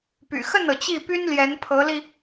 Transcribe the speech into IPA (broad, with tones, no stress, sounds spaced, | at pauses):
p y̰˨˩ x ə˥˩ n ɤ˩ t͡ɕ i˥˩ p y˥ n l j ɛ˧˥ n pʰ ɤ˧˥ l i˧